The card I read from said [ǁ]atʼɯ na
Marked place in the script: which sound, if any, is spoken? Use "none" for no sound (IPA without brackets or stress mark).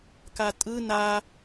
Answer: k